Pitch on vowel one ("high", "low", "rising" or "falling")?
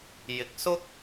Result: rising